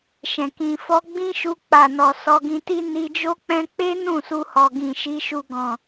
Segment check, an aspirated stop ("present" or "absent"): absent